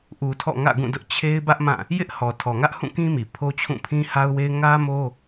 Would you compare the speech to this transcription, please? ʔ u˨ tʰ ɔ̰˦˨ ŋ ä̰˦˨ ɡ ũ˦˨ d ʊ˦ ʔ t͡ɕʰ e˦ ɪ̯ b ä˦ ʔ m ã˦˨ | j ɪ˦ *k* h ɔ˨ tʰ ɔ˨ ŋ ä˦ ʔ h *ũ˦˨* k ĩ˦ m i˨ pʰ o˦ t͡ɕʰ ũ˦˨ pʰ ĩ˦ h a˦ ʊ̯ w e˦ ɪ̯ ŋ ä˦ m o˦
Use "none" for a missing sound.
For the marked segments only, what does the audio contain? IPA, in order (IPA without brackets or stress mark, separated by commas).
ʔ, ũ˦˨